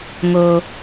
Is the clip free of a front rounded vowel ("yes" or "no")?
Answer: yes